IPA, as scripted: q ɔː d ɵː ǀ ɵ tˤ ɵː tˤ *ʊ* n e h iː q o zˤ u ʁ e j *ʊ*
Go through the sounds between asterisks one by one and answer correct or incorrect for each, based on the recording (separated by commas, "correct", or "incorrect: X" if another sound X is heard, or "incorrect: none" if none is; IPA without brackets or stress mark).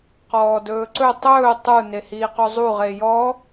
incorrect: u, incorrect: ɔ